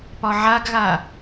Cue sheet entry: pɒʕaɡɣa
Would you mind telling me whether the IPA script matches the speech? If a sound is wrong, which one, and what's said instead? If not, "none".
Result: none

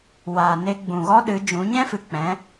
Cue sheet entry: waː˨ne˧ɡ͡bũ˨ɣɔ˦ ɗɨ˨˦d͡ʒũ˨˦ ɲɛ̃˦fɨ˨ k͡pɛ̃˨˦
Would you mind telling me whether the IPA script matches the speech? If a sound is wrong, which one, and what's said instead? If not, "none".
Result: none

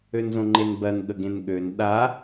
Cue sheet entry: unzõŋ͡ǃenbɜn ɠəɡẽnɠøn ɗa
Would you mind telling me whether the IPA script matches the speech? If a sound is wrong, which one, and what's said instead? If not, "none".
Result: u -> ø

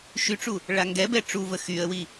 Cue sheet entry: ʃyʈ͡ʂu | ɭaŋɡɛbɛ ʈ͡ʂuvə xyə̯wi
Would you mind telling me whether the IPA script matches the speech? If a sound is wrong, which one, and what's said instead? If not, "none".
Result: none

